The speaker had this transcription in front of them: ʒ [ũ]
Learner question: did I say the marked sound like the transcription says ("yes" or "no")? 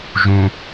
yes